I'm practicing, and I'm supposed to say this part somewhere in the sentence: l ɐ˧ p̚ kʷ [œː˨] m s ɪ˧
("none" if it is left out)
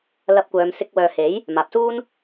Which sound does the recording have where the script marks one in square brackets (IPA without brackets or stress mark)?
œː˨˧